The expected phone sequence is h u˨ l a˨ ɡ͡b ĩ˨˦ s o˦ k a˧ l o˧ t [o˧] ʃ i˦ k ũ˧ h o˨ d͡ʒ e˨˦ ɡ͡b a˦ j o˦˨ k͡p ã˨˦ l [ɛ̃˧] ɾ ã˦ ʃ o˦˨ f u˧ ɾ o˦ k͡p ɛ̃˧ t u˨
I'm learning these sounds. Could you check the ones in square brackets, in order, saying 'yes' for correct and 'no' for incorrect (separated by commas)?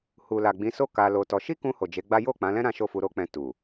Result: no, no